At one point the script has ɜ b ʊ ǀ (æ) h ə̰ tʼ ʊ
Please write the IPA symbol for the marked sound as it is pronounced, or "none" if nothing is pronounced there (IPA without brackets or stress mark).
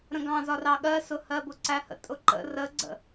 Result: æ